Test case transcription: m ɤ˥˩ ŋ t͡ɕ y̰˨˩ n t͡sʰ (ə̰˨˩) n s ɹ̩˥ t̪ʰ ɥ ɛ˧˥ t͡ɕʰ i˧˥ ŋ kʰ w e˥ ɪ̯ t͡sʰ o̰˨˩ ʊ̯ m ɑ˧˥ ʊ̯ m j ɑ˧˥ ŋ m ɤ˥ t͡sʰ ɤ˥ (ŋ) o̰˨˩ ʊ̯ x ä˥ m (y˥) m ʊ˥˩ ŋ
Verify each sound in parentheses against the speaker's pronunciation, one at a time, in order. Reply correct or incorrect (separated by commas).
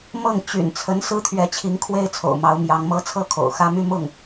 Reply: incorrect, incorrect, correct